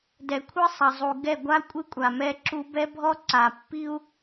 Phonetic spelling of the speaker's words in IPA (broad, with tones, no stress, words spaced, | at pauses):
dɛ˨kʷʰɨ˦sˤɐ˨zˤu˨ ɡɛ˦˨ɡʷa˦kʷʼɨ˦kʷʼa˨ mɛ˦ǁu˦ bɛ˦bʱɔ˦ǀa˨ pːi˦u̯